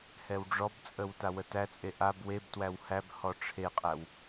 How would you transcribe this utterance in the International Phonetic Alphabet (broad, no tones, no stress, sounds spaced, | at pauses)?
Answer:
h ɛ w ɖ͡ʐ ɔ b t͡sʼ ə w t a w ə t æ t͡sʼ e ʔ a b w e b t w æ w h æ b h ɔ ʈ͡ʂʰ e qʼ æ w